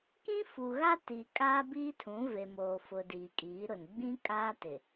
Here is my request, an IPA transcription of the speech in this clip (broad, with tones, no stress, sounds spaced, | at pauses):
k ĩ˦ f u˨ ɣ a˦ t i˨ kʼ aː˦ b iː˦ tʰ ũ˨˦ v e˨ m oː˨ f ʊ˨ d iː˨ kʼ iː˨˦ ɾ ʊ˨ n ɡ͡b ĩ˦ kʼ aː˦ t ɪ˨